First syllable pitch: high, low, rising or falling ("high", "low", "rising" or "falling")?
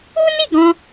high